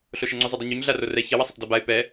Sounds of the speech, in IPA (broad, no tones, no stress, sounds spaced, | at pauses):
ɬ o ʃ ɐ ŋ͡ǀ u zˤ o dˤ u ɲ u ɲ ɮ a r o r ɛ ç ɐ w ɐ sˤ o tˤ d ɔ b a ɪ̯ p ɛ